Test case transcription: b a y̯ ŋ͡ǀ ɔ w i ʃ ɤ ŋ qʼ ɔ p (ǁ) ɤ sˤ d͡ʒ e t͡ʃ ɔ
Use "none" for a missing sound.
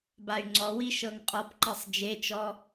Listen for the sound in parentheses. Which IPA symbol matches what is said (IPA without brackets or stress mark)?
ǃ